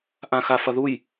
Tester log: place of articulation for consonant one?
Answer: glottal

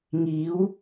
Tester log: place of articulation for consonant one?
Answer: velar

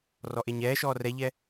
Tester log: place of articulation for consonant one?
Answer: alveolar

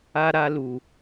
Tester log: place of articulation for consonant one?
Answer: alveolar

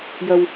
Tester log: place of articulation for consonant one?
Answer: palatal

